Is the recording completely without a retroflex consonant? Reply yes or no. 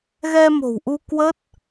yes